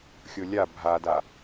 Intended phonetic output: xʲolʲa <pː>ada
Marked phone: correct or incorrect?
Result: incorrect